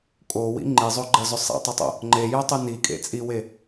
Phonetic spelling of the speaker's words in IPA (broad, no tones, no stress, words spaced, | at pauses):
kʼowḭ ŋ͡ǃizˤoɡ͡ǃɐzʏ sˤḭtˤʏtˤo̰ | ŋ͡ǃejœtˤy nikʼḛ t͡sʼiwe